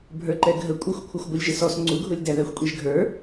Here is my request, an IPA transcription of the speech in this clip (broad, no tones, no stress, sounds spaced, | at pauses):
bʱ ə˞ ǃ ɛ ɡʱ ə kʷʼ ɪ xʷ kʷʰ ʌ xʷ ɡʷ ɪ lʲ ʒ ɪ s ɔ s ŋ͡ǀ u ɡʱ ʊ lʲ d æ ð æ xʷ kʷʼ i ʒ ɡʱ ə˞